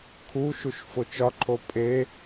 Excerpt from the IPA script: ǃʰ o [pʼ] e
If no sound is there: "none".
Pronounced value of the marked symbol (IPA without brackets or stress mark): pʼ